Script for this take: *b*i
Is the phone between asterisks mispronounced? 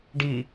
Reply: yes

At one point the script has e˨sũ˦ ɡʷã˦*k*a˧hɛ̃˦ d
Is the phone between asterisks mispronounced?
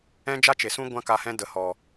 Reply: no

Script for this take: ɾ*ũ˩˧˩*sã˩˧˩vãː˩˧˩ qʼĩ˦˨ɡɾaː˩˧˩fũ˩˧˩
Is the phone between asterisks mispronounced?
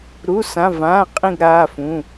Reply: yes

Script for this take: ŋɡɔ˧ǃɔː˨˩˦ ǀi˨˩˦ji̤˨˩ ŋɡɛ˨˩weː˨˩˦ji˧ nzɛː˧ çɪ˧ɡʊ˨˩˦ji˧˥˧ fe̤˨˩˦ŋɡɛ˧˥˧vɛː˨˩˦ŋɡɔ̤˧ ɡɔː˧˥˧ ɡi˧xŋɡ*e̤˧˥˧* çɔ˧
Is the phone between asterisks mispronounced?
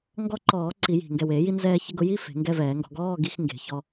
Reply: yes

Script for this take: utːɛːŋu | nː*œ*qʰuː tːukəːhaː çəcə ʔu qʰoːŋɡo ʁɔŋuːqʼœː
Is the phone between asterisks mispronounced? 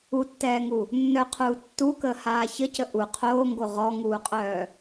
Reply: no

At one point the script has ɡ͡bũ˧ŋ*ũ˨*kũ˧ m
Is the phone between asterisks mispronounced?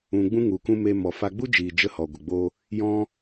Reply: yes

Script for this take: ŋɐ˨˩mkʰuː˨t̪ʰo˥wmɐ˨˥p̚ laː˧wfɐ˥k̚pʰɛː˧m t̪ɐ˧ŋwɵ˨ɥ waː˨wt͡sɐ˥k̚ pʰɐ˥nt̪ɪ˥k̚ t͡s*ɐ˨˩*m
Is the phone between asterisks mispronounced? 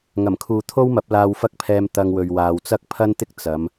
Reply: yes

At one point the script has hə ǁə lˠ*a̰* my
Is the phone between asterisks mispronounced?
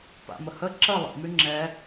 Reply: yes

